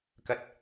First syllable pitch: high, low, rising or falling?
low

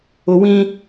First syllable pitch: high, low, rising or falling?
low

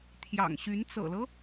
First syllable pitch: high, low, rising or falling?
low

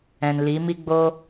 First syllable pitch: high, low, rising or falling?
low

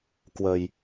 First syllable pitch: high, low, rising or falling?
low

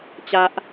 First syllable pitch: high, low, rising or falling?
high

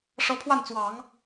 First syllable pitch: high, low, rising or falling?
rising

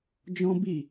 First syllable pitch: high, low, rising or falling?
high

